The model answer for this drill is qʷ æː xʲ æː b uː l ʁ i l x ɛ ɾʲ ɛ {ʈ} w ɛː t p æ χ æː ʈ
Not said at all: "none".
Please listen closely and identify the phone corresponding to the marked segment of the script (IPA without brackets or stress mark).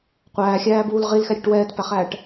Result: ʈ